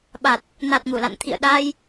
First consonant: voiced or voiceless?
voiced